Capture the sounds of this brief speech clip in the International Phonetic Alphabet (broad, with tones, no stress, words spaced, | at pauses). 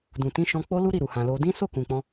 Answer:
dũ˨tĩ˧ ʃɔ̃˧k͡po˦lu˦ ɾi˦˨ɾu˨hã˨lo˧ dĩ˦ so˦˨kũ˨k͡pɔ̃˧